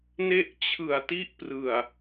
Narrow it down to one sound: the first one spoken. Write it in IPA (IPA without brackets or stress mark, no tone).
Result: n